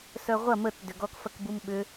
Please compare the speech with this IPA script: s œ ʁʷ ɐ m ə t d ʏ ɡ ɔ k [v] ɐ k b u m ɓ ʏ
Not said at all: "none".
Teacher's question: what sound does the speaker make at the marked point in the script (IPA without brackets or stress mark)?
f